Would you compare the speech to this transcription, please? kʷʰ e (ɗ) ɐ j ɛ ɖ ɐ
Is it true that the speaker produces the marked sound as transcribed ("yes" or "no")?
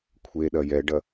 yes